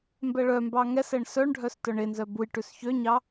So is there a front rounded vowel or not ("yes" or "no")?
yes